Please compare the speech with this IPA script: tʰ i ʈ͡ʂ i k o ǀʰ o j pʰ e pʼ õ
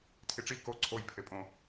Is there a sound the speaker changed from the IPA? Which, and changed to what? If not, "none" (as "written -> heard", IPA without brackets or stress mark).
none